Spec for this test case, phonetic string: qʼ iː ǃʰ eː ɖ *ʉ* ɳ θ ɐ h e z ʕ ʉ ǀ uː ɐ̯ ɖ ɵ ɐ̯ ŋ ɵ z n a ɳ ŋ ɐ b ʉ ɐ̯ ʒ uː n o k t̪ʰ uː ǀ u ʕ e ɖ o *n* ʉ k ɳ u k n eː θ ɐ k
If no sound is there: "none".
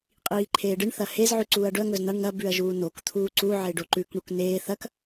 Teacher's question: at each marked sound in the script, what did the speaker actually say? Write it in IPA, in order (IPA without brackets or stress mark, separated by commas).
ɨ, ǃ